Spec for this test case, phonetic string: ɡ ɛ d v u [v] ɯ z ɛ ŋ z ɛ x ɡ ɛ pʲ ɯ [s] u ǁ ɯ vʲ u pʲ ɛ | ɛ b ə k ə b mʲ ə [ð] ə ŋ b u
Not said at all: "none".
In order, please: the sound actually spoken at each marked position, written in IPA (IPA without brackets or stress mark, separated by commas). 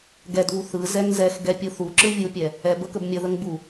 θ, θ, ð